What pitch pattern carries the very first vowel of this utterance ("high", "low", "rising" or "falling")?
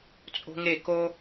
high